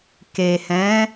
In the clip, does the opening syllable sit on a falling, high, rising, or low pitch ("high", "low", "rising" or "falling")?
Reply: low